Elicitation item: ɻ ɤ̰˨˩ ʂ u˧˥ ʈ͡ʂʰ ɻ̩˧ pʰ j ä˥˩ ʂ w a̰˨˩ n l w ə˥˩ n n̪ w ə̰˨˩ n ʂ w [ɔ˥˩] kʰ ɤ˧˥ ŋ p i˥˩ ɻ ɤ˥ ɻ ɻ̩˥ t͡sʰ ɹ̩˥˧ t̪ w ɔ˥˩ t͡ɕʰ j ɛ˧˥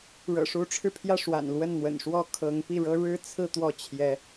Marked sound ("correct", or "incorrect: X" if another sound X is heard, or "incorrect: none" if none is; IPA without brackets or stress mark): correct